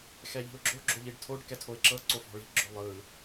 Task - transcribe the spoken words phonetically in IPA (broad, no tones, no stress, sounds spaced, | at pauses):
x ɛ ʎ i̤ ʊ̯ ɡ͡ǁ o ɡ͡ǁ o ʎ i ɖ tʰ o ɖ k ɛ tʰ o ɪ̯ ǁ ɤ ǀ o f ɔ̤ ɭ i̤ ɡ͡ǁ o lˠ ɯ